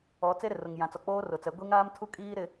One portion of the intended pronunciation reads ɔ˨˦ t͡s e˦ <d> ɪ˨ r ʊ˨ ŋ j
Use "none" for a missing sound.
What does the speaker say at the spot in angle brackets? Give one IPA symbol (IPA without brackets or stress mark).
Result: ɾ